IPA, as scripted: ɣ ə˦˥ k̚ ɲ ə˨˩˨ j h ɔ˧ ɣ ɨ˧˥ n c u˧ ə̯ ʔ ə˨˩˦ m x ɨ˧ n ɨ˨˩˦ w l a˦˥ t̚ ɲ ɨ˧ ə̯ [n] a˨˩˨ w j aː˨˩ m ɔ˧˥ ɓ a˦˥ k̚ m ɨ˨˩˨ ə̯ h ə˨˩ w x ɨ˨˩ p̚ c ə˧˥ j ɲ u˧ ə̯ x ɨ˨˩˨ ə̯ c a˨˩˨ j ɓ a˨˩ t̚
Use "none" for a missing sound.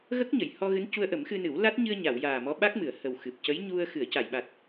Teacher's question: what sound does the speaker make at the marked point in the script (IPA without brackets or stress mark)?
ɲ